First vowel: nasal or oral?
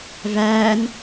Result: oral